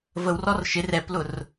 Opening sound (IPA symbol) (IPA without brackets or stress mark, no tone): v